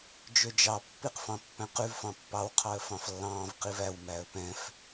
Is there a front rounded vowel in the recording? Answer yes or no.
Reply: yes